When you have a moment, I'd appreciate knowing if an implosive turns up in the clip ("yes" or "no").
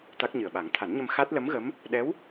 yes